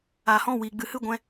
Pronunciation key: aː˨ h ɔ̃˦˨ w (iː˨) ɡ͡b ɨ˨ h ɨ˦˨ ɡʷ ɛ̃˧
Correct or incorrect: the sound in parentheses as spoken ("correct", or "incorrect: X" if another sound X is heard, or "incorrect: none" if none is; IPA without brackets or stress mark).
correct